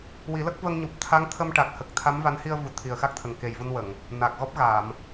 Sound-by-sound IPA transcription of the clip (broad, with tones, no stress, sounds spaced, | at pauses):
w i˨˩˦ l ə˦˥ k̚ v ə˧ ŋ ɲ u˨˩ p̚ t̪ʰ a˧˥ ŋ t̪ʰ ə˧ m ʈ a˨˩ k̚ h ə˨˩ k̚ t̪ʰ a˧˥ m v a˧˥ n h i˧ ə̯ v u˨˩ t̪ʰ i˨˩ ə̯ x a˦˥ k̚ t̪ʰ ə˨˩ ŋ k e˨˩ j v u˧ n w ə˨˩˨ ŋ | n aː˨˩ k̚ ɣ ɔ˦˥ p̚ ɣ a˨˩˨ m